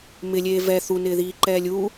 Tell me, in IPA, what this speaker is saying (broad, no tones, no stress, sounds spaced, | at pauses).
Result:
m ɪ lʲ eː v ɛ θ u n ɪː ð iː ǃ ɛː lʲ u